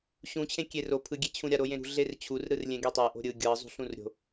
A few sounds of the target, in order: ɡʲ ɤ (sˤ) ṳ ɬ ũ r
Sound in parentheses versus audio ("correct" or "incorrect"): incorrect